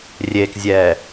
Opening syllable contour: low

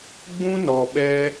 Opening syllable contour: high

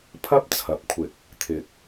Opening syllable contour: high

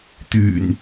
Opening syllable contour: low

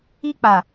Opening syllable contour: high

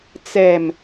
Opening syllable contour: low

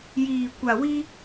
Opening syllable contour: low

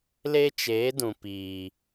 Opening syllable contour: high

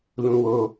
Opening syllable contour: high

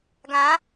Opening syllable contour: rising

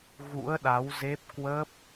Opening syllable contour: rising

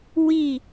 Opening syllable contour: falling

